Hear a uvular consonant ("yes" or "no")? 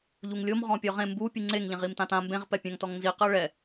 yes